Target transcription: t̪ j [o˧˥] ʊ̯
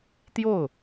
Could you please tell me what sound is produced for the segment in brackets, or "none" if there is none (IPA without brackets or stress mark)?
o˥˩